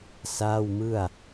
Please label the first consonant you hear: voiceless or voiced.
voiceless